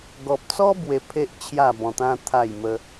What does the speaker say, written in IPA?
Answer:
ɡ ɔ˨ p̚ t͡s ɔ˦ b w e˧ pʰ e˦ ʔ t͡ɕʰ j a˥˧ b ɔ̃˧ t̪ ã˦ t̪ʰ a˥˧ j m ə˦

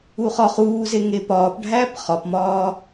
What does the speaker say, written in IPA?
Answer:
u χ ɒ χ uː z e ŋ e p ɒː p ɖʱ æː p χ ɒ p m ɒː

